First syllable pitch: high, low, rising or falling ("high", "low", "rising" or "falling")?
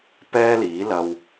high